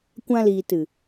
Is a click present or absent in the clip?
absent